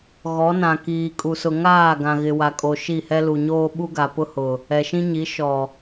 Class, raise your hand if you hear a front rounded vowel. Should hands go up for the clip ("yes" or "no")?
no